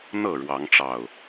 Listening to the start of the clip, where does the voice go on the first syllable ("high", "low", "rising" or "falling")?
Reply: falling